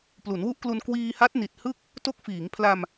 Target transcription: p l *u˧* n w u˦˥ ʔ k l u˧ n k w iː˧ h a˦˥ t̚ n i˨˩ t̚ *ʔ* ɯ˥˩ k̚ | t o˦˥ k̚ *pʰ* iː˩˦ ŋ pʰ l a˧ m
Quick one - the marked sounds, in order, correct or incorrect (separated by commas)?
incorrect, incorrect, incorrect